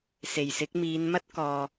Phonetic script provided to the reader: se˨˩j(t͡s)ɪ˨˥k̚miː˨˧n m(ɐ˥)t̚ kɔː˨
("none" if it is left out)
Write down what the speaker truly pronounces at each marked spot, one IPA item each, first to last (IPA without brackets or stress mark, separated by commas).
s, ɐ˥